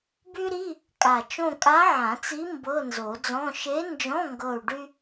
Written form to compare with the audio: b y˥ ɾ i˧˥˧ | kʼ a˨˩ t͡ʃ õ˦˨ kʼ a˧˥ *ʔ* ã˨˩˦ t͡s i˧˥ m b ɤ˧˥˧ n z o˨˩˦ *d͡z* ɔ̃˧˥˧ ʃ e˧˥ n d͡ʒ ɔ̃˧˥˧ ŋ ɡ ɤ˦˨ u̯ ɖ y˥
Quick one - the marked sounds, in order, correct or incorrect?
incorrect: ʕ, correct

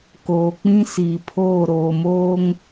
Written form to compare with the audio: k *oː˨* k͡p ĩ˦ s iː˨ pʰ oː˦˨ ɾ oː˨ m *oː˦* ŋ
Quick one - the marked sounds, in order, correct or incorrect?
correct, correct

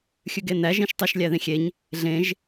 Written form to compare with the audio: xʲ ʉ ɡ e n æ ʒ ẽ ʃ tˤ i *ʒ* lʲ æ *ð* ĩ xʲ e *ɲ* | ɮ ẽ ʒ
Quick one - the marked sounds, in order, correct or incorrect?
incorrect: ʃ, correct, correct

